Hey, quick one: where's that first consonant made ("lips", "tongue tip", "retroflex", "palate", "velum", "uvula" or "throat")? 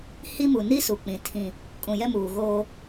throat